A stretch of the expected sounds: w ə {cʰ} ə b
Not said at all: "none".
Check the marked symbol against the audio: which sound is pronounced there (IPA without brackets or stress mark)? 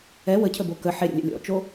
cʰ